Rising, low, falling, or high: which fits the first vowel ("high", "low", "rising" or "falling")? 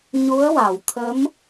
rising